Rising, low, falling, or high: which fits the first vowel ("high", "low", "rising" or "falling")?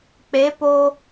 rising